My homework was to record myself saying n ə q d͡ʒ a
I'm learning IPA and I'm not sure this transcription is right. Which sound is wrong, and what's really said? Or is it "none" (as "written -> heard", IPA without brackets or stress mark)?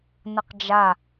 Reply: none